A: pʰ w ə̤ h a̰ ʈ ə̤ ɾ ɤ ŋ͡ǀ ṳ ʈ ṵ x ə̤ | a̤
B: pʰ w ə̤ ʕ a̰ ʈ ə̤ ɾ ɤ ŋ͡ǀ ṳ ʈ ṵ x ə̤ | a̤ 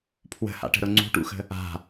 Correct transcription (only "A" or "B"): A